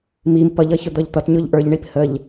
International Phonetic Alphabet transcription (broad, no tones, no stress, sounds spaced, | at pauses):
m i m p ʌ ʎ ʌ ç ʊ d̪ ʌ ʎ t̪ ʌ t ɲ ʊ ʎ ʔ ə˞ ʎ ɳ i p h ə ʎ